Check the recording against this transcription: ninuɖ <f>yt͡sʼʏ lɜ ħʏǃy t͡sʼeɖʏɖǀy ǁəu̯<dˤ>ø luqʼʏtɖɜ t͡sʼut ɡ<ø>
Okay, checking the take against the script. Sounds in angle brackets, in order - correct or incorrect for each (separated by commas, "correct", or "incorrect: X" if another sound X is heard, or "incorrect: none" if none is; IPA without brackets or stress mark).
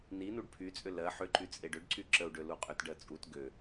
incorrect: pʰ, incorrect: ɖ, correct